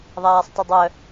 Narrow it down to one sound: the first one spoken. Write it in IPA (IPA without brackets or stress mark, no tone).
ðˤ